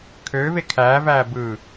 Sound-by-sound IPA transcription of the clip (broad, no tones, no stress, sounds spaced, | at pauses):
kʰ øː v e kʰ æː v æː b ɯː